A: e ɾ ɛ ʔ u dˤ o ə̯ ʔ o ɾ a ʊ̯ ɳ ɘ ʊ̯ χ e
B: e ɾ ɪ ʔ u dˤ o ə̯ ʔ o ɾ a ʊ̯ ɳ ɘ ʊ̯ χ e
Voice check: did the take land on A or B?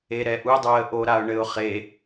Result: A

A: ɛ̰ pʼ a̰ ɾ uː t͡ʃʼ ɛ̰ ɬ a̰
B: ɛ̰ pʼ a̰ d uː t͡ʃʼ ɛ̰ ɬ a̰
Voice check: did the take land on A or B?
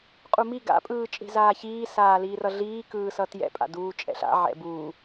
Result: B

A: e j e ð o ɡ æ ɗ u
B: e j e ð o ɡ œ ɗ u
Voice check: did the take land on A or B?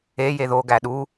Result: A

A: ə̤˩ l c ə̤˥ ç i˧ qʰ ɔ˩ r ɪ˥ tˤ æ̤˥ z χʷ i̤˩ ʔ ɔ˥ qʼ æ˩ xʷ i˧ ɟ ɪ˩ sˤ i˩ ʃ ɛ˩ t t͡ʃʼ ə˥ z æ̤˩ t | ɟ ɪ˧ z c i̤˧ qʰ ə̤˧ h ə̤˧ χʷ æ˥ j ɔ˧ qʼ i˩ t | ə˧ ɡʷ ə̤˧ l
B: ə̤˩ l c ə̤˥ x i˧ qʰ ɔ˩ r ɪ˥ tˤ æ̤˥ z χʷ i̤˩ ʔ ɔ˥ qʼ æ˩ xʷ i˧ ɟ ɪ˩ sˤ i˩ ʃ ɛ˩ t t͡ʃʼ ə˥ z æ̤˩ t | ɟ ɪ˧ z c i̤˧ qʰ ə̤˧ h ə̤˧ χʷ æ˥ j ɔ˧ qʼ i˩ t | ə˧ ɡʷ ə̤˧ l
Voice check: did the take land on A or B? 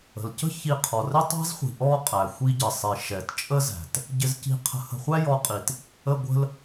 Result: A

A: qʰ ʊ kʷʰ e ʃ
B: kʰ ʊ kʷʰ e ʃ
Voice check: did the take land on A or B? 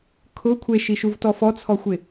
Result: B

